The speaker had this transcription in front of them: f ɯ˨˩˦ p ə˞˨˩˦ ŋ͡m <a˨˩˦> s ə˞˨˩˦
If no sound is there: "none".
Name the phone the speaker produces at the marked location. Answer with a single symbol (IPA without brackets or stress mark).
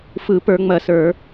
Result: ɐ˨˩˦